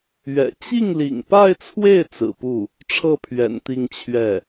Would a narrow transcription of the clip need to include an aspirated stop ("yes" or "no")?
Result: yes